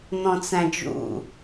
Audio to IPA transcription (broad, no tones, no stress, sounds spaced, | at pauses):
n̪ ɔ̃ t͡s æ̃ d͡ʒ ṵ